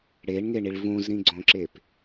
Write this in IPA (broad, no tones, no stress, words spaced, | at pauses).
ɽeɳŋeɳiɭ vũzɾĩɡ͡ǀõǁep